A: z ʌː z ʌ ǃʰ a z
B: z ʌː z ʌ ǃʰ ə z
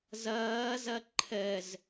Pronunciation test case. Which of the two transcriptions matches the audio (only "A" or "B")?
B